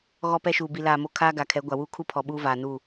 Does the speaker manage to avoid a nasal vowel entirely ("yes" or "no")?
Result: yes